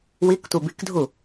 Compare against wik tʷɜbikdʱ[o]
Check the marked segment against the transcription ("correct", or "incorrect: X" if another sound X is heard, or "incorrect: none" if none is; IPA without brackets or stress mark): incorrect: u